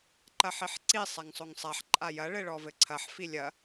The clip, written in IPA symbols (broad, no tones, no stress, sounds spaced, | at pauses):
ǃ ɐ ħ i ħ ǀ i sˤ a ŋ sˤ o ŋ sˤ a ħ ǃʼ a j ɐ ɭ ɘ ɭ ɔ v ɘ ǀʰ ɐ ħ f i lʲ ɐ